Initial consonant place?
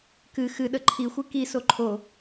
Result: velar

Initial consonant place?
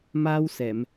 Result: labial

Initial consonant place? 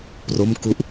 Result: labial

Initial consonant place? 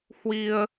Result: glottal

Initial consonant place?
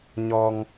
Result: palatal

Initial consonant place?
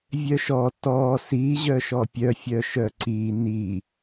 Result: labial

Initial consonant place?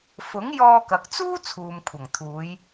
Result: labial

